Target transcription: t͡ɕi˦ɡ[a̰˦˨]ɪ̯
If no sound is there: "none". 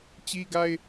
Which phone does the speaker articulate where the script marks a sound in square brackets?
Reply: a˦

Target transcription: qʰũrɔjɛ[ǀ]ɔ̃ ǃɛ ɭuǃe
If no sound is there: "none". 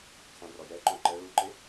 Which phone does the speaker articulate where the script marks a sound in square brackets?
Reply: ǃ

